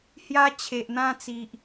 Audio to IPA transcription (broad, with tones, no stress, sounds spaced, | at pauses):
h j a˦ t͡ɕʰ e˨ ʔ n̪ ã˥˧ t͡s i˨ ʔ